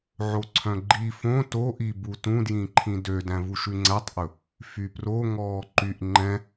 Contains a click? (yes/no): yes